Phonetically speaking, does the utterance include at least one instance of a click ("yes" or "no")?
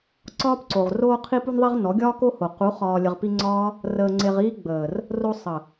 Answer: yes